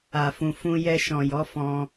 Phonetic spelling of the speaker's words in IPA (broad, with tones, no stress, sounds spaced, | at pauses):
a˨ f ũ˨ f ũ˧ j ɛ˧ ʃ ɔ̃˨ j ɔ˨˦ f ɔ̃˧